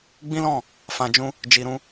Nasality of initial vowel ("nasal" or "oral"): nasal